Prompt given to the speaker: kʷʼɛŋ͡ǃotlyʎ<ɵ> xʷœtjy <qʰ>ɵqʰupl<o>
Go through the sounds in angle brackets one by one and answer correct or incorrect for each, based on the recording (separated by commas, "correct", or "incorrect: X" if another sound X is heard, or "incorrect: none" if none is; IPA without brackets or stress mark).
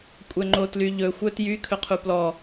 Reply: correct, incorrect: kʰ, incorrect: ɔ